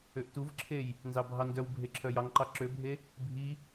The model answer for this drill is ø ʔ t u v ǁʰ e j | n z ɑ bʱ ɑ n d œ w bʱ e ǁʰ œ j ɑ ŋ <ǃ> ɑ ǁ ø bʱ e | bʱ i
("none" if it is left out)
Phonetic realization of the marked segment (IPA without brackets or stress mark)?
ǃ